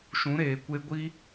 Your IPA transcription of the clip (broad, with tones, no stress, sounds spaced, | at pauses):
ʃ ũ˨˦ ɾ eː˨ kʷ e˦ ɡʷ i˦